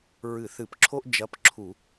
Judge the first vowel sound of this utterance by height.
high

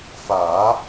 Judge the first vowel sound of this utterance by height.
low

